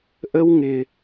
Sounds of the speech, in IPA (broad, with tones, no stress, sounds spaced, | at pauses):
ʔ ə˦ w ŋ ɪː˧